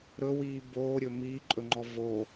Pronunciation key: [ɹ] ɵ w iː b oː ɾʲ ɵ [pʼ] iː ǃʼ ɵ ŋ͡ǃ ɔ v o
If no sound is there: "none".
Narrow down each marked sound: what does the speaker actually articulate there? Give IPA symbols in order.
ɾ, m

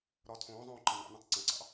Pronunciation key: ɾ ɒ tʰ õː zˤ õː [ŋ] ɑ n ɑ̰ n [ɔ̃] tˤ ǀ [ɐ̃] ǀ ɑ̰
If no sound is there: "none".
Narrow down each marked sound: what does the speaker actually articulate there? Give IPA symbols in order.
ǃ, õ, ɐ̃

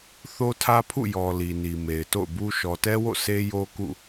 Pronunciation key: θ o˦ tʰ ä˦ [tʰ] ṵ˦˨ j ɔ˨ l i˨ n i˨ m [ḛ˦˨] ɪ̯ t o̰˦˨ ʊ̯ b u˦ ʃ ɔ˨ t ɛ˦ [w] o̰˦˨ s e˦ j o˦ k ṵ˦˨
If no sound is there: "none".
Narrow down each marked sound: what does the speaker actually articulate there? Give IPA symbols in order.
pʰ, e˨, w

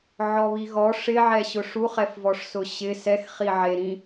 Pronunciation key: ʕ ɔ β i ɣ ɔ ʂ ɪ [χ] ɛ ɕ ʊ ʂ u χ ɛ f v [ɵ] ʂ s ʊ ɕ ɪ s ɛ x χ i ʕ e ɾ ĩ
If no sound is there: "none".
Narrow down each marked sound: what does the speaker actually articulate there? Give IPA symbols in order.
ʕ, ɔ

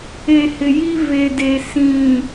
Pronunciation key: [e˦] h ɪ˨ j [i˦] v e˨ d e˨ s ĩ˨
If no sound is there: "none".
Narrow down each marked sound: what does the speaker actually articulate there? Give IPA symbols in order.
e˨, i˦

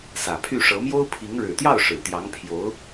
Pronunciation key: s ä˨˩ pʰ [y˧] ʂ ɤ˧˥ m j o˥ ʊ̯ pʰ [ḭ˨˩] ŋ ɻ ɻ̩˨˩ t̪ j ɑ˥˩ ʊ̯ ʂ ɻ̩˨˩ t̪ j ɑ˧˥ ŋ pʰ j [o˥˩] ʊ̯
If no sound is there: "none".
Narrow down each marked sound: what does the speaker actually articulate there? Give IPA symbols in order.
y˥˩, i˧˥, o˧˥

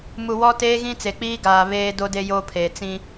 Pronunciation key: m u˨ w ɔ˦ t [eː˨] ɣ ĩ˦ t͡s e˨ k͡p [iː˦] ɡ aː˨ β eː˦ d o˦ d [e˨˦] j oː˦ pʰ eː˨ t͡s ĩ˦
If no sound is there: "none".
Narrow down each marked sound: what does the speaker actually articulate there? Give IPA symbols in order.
eː˦, iː˦, e˦

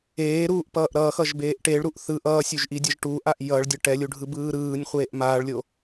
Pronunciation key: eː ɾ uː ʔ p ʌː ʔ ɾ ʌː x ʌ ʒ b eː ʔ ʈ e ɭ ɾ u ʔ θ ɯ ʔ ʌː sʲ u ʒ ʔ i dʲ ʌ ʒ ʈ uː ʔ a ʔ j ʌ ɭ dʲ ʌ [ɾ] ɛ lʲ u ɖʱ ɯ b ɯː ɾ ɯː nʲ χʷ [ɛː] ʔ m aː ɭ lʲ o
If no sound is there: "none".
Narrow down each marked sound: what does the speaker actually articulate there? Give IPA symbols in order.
ʈ, eː

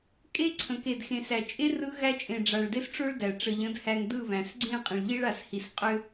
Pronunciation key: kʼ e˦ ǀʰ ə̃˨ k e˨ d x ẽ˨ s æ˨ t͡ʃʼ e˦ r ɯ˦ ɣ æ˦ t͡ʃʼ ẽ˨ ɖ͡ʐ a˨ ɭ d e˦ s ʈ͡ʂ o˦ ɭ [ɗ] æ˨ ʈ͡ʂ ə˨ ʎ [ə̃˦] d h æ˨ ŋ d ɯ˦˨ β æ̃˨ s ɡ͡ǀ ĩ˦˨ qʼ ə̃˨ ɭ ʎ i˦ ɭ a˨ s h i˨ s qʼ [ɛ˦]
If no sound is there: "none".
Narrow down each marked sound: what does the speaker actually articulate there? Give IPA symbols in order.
d, ə̃˨˦, ʏ˦

